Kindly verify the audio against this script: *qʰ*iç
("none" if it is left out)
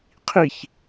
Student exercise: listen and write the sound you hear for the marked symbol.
qʰ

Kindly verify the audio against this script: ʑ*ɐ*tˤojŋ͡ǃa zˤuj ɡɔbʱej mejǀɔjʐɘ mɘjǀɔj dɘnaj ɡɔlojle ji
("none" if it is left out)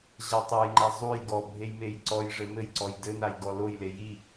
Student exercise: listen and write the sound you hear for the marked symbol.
a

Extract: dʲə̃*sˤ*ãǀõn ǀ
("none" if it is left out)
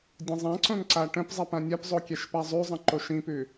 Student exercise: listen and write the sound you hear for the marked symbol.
zˤ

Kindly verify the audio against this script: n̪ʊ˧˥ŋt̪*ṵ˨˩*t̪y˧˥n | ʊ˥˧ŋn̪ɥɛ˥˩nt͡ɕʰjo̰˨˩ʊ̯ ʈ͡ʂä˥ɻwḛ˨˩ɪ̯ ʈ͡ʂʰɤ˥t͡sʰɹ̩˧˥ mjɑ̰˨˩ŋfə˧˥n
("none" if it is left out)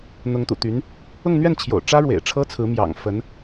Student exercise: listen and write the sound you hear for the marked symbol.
ṵ˨˩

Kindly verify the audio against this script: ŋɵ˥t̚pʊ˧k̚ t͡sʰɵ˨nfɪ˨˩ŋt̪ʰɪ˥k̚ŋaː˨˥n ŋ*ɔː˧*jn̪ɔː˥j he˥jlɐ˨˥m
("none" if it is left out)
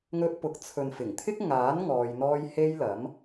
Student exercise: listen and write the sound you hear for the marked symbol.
ɔː˧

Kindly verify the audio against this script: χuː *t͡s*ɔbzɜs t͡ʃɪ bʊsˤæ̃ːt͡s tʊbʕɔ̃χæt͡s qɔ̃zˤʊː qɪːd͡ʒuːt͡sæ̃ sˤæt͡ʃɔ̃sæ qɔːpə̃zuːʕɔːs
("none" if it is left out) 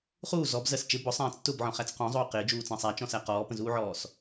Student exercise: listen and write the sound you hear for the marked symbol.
z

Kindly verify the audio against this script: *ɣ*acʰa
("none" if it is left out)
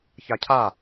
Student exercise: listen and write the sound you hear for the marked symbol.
ç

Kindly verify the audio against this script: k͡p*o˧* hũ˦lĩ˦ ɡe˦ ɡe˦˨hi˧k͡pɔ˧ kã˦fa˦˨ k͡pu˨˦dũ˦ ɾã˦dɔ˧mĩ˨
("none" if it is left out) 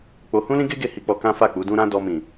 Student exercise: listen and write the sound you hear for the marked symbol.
o˧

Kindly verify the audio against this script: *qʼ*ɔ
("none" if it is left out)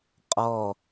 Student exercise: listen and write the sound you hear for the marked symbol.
qʼ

